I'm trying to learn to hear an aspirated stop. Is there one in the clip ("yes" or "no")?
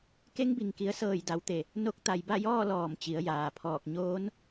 yes